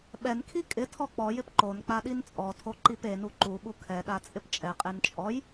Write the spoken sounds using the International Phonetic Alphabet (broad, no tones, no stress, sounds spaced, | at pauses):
ɓ ɛ n kʰ i kʼ ɪ tʰ ɔ k͡p ɔ j ɪ p ǃ o n k͡p a ɗ i n t͡sʼ ɔ tʰ o ǃ i p e n u ǃ u ɓ u kʰ ɛ ɗ a t͡sʼ ɪ p t͡ʃʼ ɛ qʼ e n t͡ʃʼ ɔ j